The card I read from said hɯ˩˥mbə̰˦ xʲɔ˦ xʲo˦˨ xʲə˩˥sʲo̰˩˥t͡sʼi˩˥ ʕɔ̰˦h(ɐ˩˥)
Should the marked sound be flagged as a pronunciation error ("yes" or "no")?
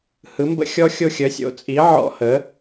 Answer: yes